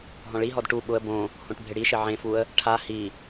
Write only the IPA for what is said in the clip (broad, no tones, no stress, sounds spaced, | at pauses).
ɦ ɔ̃ ɭ i ɦ ɔ d ʈ u ɓ ʊ ə̯ b õ | h õ ʈ bʱ ɪ ɽ i ʃ ɪ ʕ ẽ f u ə̯ | ʈʰ a h i